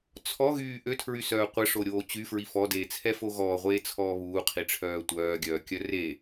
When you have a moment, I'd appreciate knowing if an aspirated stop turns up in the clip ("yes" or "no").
yes